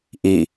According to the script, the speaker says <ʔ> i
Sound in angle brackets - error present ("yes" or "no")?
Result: no